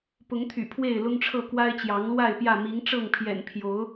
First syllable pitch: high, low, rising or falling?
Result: rising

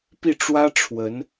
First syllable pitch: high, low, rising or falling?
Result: falling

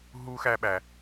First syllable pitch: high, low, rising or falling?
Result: high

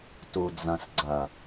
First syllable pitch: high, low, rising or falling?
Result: low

